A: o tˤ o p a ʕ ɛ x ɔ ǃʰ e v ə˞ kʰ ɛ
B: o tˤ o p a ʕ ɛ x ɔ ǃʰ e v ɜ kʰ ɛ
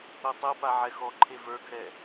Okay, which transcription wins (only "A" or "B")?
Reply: A